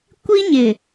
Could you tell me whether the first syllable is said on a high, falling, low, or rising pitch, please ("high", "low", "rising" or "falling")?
high